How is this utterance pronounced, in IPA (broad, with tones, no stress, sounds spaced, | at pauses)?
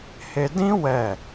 h e˧ d ĩ˦ w ɛ˦˨